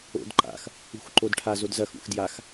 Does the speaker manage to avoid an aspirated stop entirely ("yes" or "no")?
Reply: no